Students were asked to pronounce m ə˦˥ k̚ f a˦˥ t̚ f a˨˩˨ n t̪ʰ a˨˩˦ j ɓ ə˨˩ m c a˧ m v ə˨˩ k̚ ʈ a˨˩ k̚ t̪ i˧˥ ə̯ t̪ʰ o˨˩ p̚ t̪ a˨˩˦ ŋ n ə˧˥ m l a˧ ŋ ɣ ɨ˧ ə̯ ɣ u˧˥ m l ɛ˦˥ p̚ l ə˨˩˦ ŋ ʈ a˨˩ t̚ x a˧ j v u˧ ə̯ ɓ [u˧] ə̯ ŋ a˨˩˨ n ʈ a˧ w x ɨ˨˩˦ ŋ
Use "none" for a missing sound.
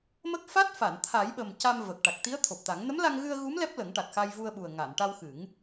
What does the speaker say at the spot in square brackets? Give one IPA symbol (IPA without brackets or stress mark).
u˨˩